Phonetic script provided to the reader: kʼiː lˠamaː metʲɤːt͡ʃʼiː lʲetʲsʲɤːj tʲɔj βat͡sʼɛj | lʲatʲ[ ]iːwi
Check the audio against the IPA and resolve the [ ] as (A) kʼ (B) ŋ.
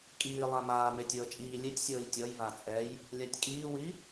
A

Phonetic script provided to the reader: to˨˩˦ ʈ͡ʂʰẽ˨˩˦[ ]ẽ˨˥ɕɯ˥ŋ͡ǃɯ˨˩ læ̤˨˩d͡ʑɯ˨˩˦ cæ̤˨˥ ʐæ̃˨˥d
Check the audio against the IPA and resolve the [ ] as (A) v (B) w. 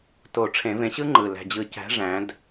A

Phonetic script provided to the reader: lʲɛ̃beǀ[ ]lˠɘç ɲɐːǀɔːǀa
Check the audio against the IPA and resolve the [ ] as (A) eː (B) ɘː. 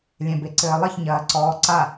B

